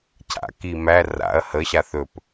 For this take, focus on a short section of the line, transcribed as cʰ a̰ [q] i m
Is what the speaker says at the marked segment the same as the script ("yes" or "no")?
no